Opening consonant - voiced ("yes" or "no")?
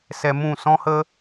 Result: no